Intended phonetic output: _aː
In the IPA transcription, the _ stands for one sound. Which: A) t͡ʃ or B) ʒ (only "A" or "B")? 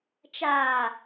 A